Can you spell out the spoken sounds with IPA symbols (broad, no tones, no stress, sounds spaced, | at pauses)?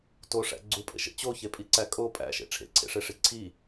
t o ʂ æ̰ ɡ͡ǀ u pʼ ḛ ʃ ḛ t͡ɕ o ç e pʼ i ǀ æ kʼ o pʼ æ̰ ʃ ḛ ʈ͡ʂʰ ḛ ǀʰ ḛ ʂ e ʂ i ǀʰ i